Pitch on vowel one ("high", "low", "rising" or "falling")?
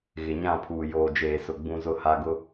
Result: low